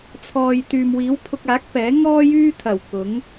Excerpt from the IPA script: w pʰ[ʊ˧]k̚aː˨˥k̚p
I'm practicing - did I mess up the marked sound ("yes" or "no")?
no